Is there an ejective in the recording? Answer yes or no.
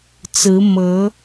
no